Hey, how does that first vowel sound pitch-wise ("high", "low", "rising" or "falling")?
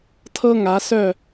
high